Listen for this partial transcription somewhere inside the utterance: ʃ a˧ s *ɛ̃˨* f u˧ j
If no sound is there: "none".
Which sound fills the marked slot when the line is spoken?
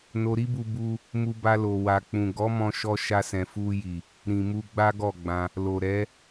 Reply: ɛ̃˨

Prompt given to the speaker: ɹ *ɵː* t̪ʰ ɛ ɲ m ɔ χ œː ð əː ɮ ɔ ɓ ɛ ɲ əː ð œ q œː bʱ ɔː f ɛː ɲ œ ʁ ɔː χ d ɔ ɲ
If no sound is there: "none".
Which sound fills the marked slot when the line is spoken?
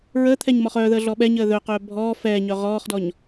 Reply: əː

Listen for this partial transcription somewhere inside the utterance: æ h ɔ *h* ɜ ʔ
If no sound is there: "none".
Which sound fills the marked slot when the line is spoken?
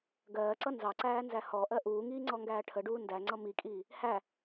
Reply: ʔ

